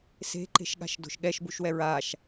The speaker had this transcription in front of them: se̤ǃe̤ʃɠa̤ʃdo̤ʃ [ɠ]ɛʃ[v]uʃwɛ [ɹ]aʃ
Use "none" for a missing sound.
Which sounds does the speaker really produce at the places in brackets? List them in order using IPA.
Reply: ɠ, b, ɹ

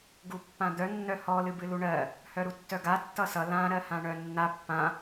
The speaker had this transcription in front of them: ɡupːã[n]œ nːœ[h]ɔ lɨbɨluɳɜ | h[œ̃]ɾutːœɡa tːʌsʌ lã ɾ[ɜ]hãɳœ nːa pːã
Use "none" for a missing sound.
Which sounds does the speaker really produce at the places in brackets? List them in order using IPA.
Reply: d̪, h, œ, ɜ

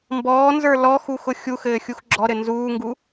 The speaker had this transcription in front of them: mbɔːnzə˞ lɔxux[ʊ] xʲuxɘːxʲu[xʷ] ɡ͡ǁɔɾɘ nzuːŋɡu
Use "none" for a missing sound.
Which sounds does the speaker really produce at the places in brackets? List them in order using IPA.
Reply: ʊ, x

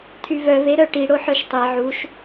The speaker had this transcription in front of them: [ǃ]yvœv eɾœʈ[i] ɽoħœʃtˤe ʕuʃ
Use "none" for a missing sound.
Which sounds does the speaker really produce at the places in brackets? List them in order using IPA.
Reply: tʰ, i

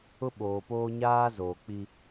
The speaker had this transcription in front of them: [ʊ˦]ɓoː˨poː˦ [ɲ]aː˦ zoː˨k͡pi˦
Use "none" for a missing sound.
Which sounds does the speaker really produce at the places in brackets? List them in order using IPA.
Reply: ʊ˦, ɲ

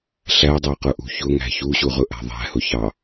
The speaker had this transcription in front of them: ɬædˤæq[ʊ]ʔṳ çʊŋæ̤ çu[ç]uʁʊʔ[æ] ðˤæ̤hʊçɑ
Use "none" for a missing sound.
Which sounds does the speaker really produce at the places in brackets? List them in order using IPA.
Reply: ʊ, ɕ, æ̤

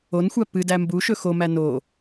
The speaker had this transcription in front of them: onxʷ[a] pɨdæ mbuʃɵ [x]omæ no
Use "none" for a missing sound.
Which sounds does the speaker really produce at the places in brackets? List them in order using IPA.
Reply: æ, x

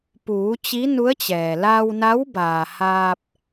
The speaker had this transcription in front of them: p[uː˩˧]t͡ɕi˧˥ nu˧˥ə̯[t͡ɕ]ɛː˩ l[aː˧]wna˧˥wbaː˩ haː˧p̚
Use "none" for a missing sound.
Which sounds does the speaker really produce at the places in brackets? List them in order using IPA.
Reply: uː˩˧, t͡ɕ, aː˧

